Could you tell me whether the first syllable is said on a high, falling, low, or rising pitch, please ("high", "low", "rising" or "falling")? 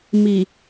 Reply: low